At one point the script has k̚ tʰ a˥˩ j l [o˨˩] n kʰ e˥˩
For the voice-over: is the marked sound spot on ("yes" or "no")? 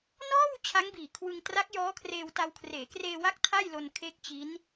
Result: no